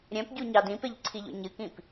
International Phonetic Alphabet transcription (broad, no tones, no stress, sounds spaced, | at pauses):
ɾʲ œ̃ p ɟ u ɲ ɑ d ĩ p e ʎ ǀʰ i ʎ o̰ ɲ ɨ k ĩ p